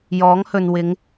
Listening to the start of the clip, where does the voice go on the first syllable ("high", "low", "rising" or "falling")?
rising